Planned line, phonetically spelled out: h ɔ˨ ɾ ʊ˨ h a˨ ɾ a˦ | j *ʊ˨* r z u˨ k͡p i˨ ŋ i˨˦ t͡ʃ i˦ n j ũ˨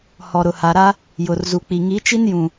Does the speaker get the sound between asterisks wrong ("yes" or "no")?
no